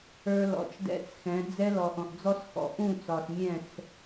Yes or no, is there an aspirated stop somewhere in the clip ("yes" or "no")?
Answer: no